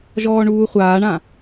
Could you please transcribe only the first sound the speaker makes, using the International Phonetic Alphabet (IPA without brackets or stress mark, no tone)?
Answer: ʒ